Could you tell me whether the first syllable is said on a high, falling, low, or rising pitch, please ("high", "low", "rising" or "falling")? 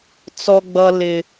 high